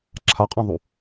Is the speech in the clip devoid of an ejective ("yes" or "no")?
no